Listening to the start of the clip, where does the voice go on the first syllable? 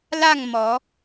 falling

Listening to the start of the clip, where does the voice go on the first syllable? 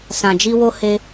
low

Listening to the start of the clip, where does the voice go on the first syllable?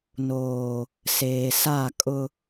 low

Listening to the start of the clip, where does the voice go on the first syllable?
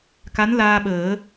rising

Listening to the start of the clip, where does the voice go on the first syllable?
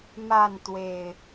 falling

